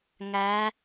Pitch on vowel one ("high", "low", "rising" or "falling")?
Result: rising